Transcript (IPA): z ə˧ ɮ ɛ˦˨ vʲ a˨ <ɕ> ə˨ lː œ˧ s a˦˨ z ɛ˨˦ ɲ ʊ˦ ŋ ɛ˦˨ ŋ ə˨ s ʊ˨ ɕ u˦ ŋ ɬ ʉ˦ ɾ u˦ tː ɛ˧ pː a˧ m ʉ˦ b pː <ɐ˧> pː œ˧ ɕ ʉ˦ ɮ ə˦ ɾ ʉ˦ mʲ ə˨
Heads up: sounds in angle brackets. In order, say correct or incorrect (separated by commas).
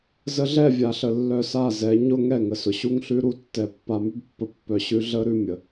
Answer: incorrect, incorrect